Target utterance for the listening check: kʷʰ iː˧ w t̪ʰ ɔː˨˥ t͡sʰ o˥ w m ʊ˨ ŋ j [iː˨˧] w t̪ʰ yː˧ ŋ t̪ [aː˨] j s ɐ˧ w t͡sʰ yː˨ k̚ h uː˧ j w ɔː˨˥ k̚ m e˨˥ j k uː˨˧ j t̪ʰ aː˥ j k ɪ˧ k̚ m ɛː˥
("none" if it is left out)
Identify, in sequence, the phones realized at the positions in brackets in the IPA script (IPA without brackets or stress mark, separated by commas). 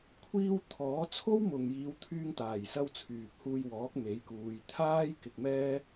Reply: iː˨˧, aː˨˩